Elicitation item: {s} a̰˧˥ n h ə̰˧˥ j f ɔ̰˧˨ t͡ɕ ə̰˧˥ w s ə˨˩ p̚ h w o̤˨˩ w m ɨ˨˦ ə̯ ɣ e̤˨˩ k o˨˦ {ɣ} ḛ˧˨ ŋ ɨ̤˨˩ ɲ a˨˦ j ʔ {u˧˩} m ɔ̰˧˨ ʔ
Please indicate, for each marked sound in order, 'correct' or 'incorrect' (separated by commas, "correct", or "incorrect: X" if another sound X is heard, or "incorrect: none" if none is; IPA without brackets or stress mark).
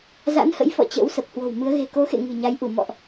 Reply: incorrect: z, incorrect: x, correct